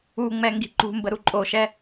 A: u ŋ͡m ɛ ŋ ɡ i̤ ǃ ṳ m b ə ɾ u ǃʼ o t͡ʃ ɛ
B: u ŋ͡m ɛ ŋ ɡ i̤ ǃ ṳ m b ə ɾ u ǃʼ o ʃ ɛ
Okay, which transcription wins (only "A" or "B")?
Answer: B